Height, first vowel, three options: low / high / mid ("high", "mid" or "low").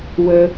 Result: mid